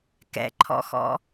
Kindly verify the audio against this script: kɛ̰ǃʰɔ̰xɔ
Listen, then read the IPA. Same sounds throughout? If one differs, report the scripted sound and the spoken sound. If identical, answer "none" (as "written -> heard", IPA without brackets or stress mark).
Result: ɔ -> ɔ̰